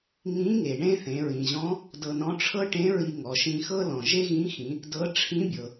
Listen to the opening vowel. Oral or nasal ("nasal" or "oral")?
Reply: nasal